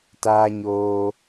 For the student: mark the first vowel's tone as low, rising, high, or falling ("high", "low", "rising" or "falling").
high